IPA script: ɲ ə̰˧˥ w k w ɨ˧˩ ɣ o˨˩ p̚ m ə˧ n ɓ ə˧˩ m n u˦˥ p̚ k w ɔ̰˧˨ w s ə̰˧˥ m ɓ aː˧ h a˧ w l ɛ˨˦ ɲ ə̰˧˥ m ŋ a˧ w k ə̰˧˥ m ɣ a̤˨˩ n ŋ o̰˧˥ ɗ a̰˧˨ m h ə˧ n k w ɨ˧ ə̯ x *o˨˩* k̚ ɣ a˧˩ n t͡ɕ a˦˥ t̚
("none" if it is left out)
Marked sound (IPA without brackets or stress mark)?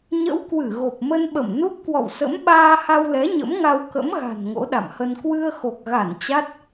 o˨˩